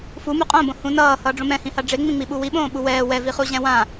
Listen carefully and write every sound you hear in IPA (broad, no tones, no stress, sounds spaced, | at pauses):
f u m u qʼ õ b õ h ũ n ʌː h ʌː ɖ͡ʐ õ m ɛ̃ h ĩ h a ɖ͡ʐ e ŋ͡m ĩ ŋ͡m i ɓ u w i ɓ õː ɓ u w ɛː w ɛ v i χ u ʑ ɛ̃ w ã